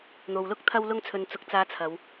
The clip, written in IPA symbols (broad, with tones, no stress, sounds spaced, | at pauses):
n̪ o˨ w l ʊ˥ k̚ t̪ʰ ɐ˥ w l ʊ˥ ŋ t͡sʰ ɵ˧ n t͡s ʊ˨ k̚ t͡s aː˨˧ t͡sʰ ɐ˨˧ w